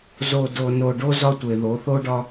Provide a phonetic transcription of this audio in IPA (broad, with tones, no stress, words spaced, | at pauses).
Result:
zo˨do˨ no˨ɖo˦ zɒ˦tʷe˨ ðo˨˦θo˦ɖɒ˦